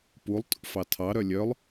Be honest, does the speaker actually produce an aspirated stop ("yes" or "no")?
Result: yes